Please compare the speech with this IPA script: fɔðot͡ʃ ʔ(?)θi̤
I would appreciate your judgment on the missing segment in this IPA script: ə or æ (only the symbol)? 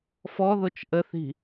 ə